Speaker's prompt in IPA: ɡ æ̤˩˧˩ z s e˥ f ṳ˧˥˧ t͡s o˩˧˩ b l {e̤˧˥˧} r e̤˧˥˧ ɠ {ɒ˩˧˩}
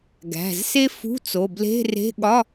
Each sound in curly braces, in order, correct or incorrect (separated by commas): correct, incorrect